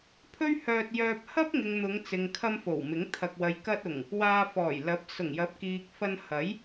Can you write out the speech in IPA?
pʰ ɵ˥ ɥ h œː˧ t̚ j œː˧ p̚ h ɐ˥ p̚ ŋ ɪ˨ ŋ n̪ ʊ˨˧ ŋ t͡s ɪ˨ ŋ kʰ ɐ˧ m f o˨˩ w m ɪ˨˥ ŋ t̪ʰ ɐ˨ k̚ w ɐ˨ j k ɐ˧ t̚ ʊ˨˩ ŋ | w aː˧ f ɔː˨˩ j l ɐ˨˥ p̚ s ʊ˨˩ ŋ j ɐ˨˥ p̚ k iː˨ k̚ f ɐ˧ n h ɐ˨˥ j

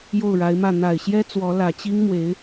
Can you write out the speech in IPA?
j o˥˩ ʊ̯ ɻ a˧˥ ɪ̯ m ä˥˩ n̪ a˨˩ ɪ̯ ɕ j ɛ˥ t͡s w ɔ˧˥ l ä˨˩ t͡ɕ i˥ ŋ m w e˧˥ ɪ̯

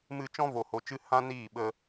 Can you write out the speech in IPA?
m ɨ˧ t͡ʃ ɔ̃˦ v o˨ h o˨ t͡ʃ ɨ˧ h ã˦ n iː˦˨ ɓ ə˧

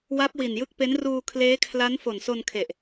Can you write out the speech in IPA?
w a˦˥ p̚ w i˨˩ n j ɯ˦˥ k̚ p e˦˥ n r uː˧ kʰ l eː˦˥ kʰ l a˦˥ n f o˨˩ n s o˧ n kʰ e˨˩ ʔ

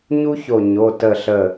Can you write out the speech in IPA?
ɲ u˥ ç o˧˩ ɲ o˩˧˩ t ə˧˩ ɬ ə˧˩

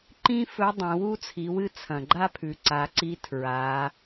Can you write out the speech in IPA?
ǃ ĩ˥ f ɵ˧˥ dˤ ẽ˩˧ w u˥ t͡sʰ i˩˧ w ɨ˥ t͡sʰ ɐ̃˩ ɡ͡ǃ a˥ pʰ ʉ˩˧ ǀ a˩˧ ǀ i˧˥ tʰ ɹ a˩˧

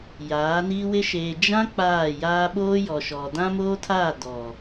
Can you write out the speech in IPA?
j aː˨˦ n iː˦ w ɪ˦ ʃ eː˨ d͡ʒ ã˦ k͡p aː˦˨ j aː˦ ɓ oː˦ j ɔ˨ ʃ ɔ˨ d ã˦ m oː˦ tʰ aː˦˨ d ɔ˨

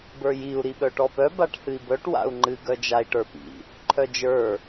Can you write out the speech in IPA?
b ə˞ j i u̯ ɾ i ɓ œ ʈ ɔ p œ b a ʈ h ɨ i̯ b œ ʈ w a̰ u̯ ŋ͡ǃ ɨ ɡ œ d͡ʒ a i̯ ʈ ə˞ p ḭ | ǃʰ œ d͡ʒ ə˞

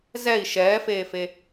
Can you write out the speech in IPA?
z ɛ i̯ ʃ ɛː f eː f e

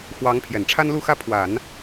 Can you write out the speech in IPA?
x w ɑ˧˥ ŋ pʰ j ɛ˨˩ n ʈ͡ʂʰ a˥ n l u˥˧ x ä˥˩ pʰ w a˨˩˦ n

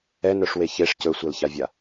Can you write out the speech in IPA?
ɛ n œ ʂ w e ç e ʂ c ɵ sʷ ɛ l ç a vʲ a

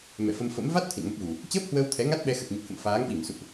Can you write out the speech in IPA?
m ɛ̰˧˨ f ə˧ m f ə̰˧˥ m v a˦˥ t̚ t̪ʰ ḭ˧˨ n m ə˦˥ p̚ ɣ u˨˩ | t͡ɕ əː˦˥ p̚ h w əː˧ w t̪ʰ ɛ˨˦ ŋ a˦˥ t̚ ɓ ɛ˧ x ə˨˩ t̚ ɲ ə˨˩ t̚ h ə̰˧˨ m f aː˨˦ ŋ ɓ i˧˩ m s ṵ˧˨ ʔ

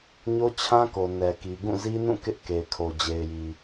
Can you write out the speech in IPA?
ɲ o˦ t͡ɕʰ ã˦ k o˨ n ɛ˨ k i˨ ɡ ũ˦˨ z i˦ n ũ˦˨ k ɪ˦ ʔ k e˨ ɪ̯ kʰ o˨ d͡ʑ e˨ ɪ̯ j i˨

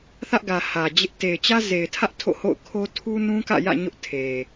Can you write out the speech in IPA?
θ ä˦ ʔ ɡ ä˨ h ä˨ d͡ʑ ɪ˦ ʔ t e˨ ɪ̯ t͡ɕ ä˦ z e˨ ɪ̯ tʰ ä˦ ʔ tʰ o̰˦˨ h o̰˦˨ ʊ̯ kʰ o˦ tʰ u˦ n ũ˦ k ä̰˦˨ j ä̰˦˨ ɲ ʊ˦ ʔ tʰ e˨

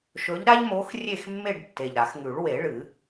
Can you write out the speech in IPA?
ʃ ɵ˨˦ ʎ ɾ a˦ ʎ m o˨˦ x rʲ e˦˨ x mː e˦˨ ɖ tː e˨˩ ʎ ɾ a˨˩˦ x ŋ ʉ˨˩˦ ɭ w e˨˩˦ ɭ ɨ˨˩˦

